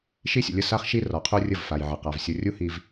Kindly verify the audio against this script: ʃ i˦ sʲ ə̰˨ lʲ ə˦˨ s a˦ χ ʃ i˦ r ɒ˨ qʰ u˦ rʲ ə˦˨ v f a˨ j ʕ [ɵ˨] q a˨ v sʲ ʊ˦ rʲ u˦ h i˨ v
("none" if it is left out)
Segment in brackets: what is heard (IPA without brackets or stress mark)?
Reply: ə˨